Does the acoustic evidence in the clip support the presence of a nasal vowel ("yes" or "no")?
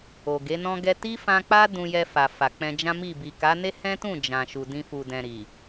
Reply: yes